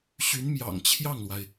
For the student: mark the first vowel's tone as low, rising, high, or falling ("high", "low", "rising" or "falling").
rising